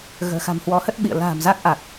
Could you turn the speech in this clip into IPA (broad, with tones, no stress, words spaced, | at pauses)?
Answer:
ɣə̤ː˨˩xa̤˨˩mhwɔ˨˦hə˦˥t̚ ɓḭ˧˨ə̯ la̤ː˨˩mza˦˥k̚ ʔa˨˩k̚